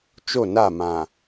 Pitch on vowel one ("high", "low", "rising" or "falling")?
falling